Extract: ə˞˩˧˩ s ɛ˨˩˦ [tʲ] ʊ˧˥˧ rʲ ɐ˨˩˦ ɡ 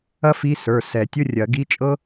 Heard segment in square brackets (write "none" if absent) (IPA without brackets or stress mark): tʲ